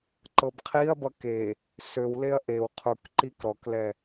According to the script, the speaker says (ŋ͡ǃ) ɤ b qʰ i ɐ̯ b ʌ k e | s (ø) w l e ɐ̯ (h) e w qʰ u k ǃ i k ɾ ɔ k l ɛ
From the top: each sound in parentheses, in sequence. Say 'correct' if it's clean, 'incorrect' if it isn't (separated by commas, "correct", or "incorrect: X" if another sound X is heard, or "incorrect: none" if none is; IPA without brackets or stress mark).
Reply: incorrect: ǃ, correct, incorrect: ʔ